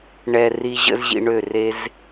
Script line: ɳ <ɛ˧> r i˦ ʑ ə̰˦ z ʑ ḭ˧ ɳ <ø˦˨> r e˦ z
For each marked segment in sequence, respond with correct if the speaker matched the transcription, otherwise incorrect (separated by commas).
correct, correct